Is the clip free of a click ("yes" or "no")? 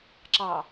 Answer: no